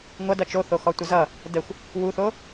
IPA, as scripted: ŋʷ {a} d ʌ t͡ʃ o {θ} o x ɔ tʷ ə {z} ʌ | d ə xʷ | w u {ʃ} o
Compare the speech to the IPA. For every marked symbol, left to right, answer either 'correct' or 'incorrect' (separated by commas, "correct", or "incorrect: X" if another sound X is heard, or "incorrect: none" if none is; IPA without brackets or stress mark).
incorrect: ʌ, correct, correct, incorrect: θ